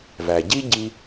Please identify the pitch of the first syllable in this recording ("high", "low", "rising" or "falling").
low